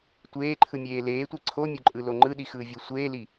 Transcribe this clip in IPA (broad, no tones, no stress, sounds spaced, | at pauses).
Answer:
tʷ eː ǃʰ ɯ mʲ eː l eː tʷ i ǀʰ o mʲ o ǃʼ ɯ l o ŋ͡ǃ ɯ ɗ i x ɯː vʲ o sʷ eː l i